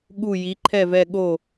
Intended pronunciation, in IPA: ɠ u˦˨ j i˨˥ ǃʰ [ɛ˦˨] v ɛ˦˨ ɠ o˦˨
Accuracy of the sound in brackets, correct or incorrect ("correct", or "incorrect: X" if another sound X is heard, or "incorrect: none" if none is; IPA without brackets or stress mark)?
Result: correct